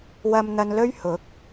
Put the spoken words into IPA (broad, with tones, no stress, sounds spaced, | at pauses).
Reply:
w ɐ˧ m n̪ ɐ˧ n l ɵ˥ ɥ h ʊ˨˥ k̚